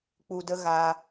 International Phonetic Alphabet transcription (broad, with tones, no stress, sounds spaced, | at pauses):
k͡p u˨ d ə˧ ɣ a˧